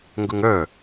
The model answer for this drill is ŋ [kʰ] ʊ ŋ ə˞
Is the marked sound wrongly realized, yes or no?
yes